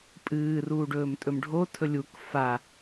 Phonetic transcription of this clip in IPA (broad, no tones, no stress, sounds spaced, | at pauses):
pʼ ɨː r uː ɖ ɵː m tʼ ɵ m ɖʱ o tʰ ɵ lʲ u k f a